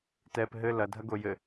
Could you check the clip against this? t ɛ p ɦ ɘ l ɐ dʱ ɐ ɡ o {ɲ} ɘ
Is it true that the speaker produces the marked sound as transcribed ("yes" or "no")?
no